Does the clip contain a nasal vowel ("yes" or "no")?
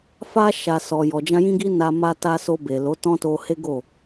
yes